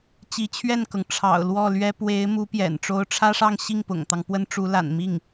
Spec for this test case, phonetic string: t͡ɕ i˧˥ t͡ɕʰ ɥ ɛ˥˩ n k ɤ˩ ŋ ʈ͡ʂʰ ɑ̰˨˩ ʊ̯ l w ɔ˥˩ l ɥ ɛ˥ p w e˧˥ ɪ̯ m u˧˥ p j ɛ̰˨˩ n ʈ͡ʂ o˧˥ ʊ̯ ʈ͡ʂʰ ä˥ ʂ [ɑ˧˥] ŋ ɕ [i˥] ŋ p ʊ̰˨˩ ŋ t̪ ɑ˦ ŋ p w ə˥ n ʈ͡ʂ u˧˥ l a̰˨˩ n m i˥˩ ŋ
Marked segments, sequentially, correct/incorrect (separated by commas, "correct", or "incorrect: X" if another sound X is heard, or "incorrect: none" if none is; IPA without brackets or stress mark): incorrect: ɑ˥˧, incorrect: i˥˩